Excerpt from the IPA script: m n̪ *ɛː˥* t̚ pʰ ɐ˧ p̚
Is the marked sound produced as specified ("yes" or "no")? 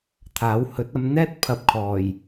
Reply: yes